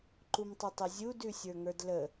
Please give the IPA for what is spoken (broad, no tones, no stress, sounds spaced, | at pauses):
ǃ u m tˤ ə tˤ ə zʲ u d ʉ sʲ ə˞ ŋ ə˞ d l ə